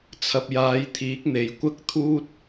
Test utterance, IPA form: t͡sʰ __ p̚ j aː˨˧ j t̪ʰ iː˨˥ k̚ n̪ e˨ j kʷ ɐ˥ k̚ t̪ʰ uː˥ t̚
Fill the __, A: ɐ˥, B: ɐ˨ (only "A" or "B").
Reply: B